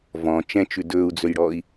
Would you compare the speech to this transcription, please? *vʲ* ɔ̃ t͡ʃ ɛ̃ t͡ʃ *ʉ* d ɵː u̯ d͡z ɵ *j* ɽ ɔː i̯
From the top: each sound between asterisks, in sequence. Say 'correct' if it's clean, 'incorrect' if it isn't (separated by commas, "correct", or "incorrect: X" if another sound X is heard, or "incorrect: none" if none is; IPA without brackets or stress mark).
incorrect: v, correct, correct